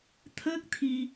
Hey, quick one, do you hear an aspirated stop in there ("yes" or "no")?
yes